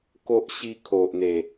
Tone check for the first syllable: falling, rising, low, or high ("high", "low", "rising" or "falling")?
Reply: high